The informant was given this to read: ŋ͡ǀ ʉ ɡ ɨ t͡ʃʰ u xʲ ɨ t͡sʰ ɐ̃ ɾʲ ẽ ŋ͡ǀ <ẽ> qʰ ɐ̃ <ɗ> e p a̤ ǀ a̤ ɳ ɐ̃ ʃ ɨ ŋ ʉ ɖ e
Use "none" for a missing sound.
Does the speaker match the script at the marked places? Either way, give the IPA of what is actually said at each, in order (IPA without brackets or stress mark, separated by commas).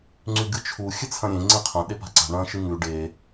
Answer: ẽ, ɗ